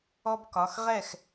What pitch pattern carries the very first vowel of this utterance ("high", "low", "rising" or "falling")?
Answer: high